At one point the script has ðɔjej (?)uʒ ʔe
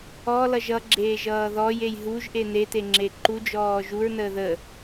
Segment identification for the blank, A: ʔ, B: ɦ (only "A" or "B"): B